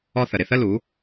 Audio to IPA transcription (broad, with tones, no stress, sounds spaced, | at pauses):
ɔ˦ θ ə˨ ɾ ɪ˨ θ ə˦ l u˨˦